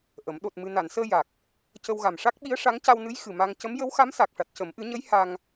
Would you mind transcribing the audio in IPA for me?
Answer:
ʔ ə˨˩˦ m ɗ o˨˩ t̚ m ɨ˨˩ n a˨˩˨ n s əː˧ j a˨˩ k̚ | c ə˧ w ɣ a˨˩ m ʂ a˦˥ k̚ ɓ i˧˥ ə̯ ʂ a˧˥ ŋ c a˧ w n ɨ˧˥ j x ɨ˨˩ m a˧ ŋ c ə˧˥ m j ə˧˥ w x a˧˥ m s a˨˩ k̚ ʂ a˨˩ t̚ c ə˨˩˦ m ʔ ɨ˨˩˦ ɲ ə˧˥ j h a˧ ŋ

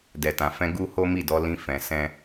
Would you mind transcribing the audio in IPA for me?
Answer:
d ɛ˨ t ã˨ f ɛ̃˧ ɡ u˦ h o˦ m i˦˨ d ɔ˨˦ l ĩ˧ f ɛ̃˨ s ɛ̃˧

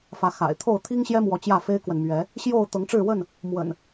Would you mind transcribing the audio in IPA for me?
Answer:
f ä˨˦ x a̰˨˩ ɪ̯ t̪ʰ o˥˨ ʊ̯ t̪ʰ i˦ ŋ ɕ j ɛ˦ m w ɔ˨˦ t͡ɕ j ä˥˨ f e˦ ɪ̯ k w ə˨ n m ɥ ɛ˨˦ | ɕ j o˥˨ ʊ̯ t̪ ɤ˨˦ ŋ ʈ͡ʂ ɻ̩˥˨ w ə˥˨ n | m w ə̰˨˩ n

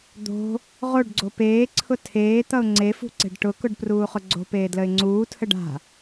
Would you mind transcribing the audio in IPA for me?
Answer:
d̪ o̤ | ʁ o ɖ ɡ͡ǀ o p eː ǀʰ ʊ tʰ eː t̪ ʌ ʊ̯ ŋ͡ǀ e f ṳ ǀ e̤ ɖ ʈ ʊ k ʊ ɖ p r uː χ ʊ ɡ͡ǀ o̤ p eː d l ə ɪ̯ ŋ͡ǀ uː tʰ ə ɖ a̤

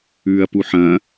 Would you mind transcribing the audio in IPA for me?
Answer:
ʉː ɐ̯ p u ħ ɐ̃

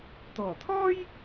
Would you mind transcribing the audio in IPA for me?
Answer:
t̪ ɔː˨˩ t̪ʰ ɔː˥ j

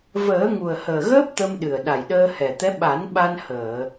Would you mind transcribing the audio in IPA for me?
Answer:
v əː˨˩˦ ŋ u˨˩ ə̯ h əː˨˩ ɣ əː˦˥ p̚ t̪ ə˧ m ɗ ɨ˨˩ ə̯ ɗ a˨˩ j ɗ əː˧ h ɛ˨˩ t̪ ɛ˧˥ ɓ a˨˩˦ n ɓ a˧ n h əː˨˩˨

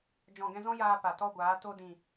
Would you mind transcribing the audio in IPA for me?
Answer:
d͡ʒ ɔ̃˨ ɡ ɛ̃˧ z ɔ̃˦ j aː˧ p a˨ t ɔ˦ ɡʷ aː˨˦ t o˧ d ĩ˨

